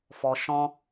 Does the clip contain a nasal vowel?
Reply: yes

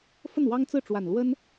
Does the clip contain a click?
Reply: no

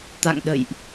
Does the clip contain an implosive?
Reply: yes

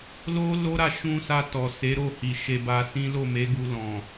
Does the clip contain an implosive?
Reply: no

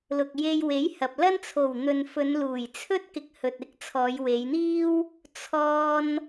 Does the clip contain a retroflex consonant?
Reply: no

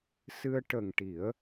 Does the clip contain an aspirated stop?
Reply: no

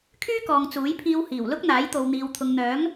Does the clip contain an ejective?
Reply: no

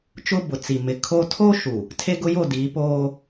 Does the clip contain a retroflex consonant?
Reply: no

